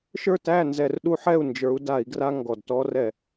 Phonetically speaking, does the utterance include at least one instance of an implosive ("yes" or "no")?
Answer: yes